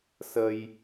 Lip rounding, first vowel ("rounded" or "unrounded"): unrounded